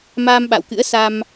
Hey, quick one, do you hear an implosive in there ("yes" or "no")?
yes